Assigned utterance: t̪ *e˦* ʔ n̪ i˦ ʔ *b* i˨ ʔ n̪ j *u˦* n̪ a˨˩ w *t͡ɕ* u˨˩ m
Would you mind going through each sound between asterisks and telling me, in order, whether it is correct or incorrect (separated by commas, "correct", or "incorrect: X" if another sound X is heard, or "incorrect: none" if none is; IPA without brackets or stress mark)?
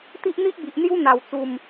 incorrect: i˦, correct, correct, incorrect: t͡s